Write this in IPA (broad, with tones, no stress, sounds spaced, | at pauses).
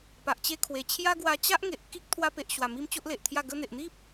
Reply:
p a˨ ʔ t͡ɕ e˧ kʰ w e˨˩ t͡ɕʰ j a˦ ɡ w a˧ t͡ɕ a˦ ʔ ŋ e˨ ʔ k i˦ k̚ t̪ʰ w a˧ p e˨ ʔ ɕ w a˨˩ m i˧ m t͡ɕ o˦ ʔ l e˨ ʔ t̪ʰ j a˥˧ ɡ ə˧ n̪ e˨ ʔ n̪ i˦ p̚